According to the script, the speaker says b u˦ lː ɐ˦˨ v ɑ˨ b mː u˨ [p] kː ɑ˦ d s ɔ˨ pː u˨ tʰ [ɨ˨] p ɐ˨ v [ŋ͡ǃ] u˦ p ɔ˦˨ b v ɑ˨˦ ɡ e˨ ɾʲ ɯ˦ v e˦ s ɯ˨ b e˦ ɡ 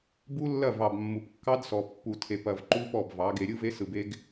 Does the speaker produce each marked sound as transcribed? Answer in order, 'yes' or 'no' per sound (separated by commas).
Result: yes, no, no